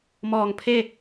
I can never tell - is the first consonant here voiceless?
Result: no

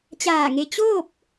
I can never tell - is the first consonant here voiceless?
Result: yes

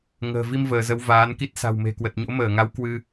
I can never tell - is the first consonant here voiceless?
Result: no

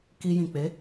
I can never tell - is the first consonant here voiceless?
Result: yes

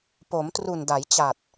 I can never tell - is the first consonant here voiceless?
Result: yes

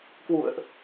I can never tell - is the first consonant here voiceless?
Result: yes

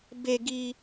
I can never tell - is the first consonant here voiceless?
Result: no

